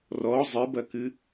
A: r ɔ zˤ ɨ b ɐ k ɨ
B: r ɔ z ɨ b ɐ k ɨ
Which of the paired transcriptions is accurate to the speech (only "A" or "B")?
A